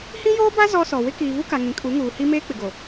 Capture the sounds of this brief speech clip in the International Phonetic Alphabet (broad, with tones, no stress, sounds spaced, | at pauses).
h ĩ˦ j oː˦ b a˦ z ɔ˦ s ɔ˨ w ɪ˦ k iː˨ v u˦ k a˨ ŋ ĩ˨ kʼ u˨˦ ŋ uː˨ h i˦ m eː˦ k͡p ɪ˨ ɡ o˨